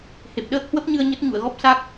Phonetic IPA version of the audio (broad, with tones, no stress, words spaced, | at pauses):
he˨˩p̚ɗəː˦˥k̚hwə˦˥p̚ɲɨ˧ə̯ ɲə˦˥t̚ɲṵ˧˨ə̯ɣɔ˦˥p̚ sa˦˥k̚